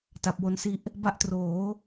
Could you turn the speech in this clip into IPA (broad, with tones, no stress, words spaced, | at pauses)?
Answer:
ta˨˩p̚wo˧nsi˦˥ʔ | ba˦˥ʔtroː˩˦